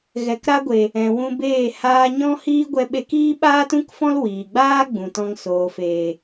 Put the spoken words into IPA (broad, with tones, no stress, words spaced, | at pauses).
ɣɛ˨kɾa˧ɡʷe˨ | ɛ̃˨wũ˧beː˦˨ haː˧ɲɔ̃˦hiː˦ɡʷɛ˧ ɓe˦k iː˦ɓaː˦tũ˦kfɔ̃˦l wiː˨ɡ͡baː˦ ɡ͡bũ˨tɔ̃˧ŋ soː˨feː˨